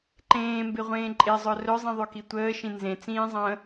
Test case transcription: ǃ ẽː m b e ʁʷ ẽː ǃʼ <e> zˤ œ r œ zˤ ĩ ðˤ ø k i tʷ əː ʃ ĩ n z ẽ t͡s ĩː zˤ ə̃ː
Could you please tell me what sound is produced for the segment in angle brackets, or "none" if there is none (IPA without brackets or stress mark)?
e